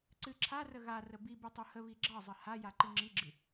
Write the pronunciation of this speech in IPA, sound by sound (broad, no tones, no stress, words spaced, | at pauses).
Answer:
ǀɨ ǁʰarə ɣa rəbibɨ tˤuhəβi ɡ͡ǁɑzˤə ha jaǃɨŋ͡ǁiɡ͡ǁɨ